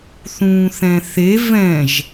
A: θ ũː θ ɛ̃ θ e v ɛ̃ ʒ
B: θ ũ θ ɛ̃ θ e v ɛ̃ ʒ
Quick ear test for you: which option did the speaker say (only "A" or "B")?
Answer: A